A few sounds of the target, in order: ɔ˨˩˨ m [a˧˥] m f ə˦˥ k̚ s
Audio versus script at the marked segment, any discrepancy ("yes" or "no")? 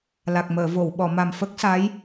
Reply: yes